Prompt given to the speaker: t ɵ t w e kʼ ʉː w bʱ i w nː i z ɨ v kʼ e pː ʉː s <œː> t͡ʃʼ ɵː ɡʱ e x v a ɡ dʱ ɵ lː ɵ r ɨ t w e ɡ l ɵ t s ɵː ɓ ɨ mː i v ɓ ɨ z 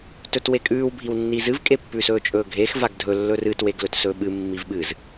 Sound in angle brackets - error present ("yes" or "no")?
yes